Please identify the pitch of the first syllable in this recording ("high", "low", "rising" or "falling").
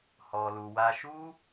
low